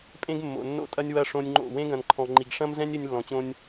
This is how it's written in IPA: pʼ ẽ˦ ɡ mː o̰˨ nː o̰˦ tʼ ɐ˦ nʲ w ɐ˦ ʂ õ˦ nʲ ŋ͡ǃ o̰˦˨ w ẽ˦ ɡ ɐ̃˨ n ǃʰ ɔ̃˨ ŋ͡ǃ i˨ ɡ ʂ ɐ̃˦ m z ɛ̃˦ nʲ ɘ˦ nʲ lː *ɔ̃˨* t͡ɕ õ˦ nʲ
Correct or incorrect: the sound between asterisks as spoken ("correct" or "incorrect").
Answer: correct